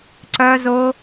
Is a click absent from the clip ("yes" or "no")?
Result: no